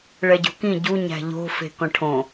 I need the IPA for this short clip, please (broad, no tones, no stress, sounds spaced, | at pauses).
ɭ ɛ ɟ o̤ k ĩ ɟ u ɲ æ̤ ʎ o̤ f e̤ k ɔ̃ ʈʰ õ